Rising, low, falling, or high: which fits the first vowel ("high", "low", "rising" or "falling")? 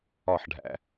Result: falling